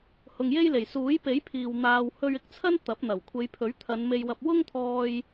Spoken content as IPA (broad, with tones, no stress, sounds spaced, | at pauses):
h ʊ˨ ŋ j e˥ j l e˨˩ j s uː˨˥ j p e˨˥ j pʰ iː˨ w n̪ aː˧ w h ɵ˧ ɥ ɪ˧ k̚ t͡sʰ ɐ˥ n t̪ ɐ˨˥ p̚ n̪ ɐ˨˩ w kʷʰ e˨˧ j pʰ ɵ˨˥ ɥ t̪ʰ ɐ˨˧ n m e˧ j w ɐ˧ p̚ w ʊ˥ ŋ t̪ʰ ɔː˧ j